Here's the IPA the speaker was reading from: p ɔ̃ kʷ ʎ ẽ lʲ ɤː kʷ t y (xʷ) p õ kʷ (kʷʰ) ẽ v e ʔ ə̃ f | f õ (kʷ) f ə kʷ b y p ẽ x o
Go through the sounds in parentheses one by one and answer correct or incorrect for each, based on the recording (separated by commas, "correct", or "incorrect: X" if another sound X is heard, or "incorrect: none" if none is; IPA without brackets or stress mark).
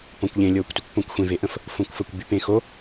incorrect: kʷ, incorrect: xʷ, correct